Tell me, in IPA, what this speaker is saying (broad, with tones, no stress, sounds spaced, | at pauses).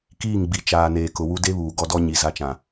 k iː˦˨ ŋ ɡ͡b i˨ t͡ʃ aː˨ n eː˨ k ʊ˨ w u˦ d e˦ β uː˨ ɡ ɔ˦ d ɔ˦ ɲ i˨ z a˦ t͡ʃ ã˨